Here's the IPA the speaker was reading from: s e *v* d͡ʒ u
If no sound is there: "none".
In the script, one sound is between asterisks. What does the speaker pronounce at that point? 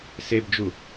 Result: b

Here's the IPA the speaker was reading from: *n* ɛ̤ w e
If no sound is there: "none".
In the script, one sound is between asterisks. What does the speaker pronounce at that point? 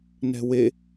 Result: n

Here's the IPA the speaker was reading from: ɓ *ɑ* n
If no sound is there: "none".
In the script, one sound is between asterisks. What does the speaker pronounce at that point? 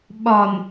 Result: ɒ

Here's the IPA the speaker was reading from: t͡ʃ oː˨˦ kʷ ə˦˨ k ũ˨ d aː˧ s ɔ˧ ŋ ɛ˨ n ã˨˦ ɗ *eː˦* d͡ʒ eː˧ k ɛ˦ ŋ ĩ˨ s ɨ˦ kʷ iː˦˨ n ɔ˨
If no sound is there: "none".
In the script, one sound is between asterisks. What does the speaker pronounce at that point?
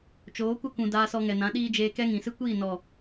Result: iː˦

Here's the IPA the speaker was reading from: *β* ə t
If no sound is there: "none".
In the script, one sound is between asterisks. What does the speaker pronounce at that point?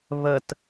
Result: β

